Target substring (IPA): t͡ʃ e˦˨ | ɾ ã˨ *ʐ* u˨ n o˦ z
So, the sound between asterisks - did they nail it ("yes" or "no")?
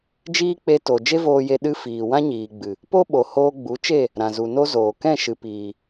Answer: no